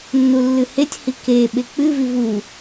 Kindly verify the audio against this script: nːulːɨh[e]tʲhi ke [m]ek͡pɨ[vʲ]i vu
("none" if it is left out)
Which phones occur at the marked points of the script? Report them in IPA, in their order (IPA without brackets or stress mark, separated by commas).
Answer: e, ɓ, v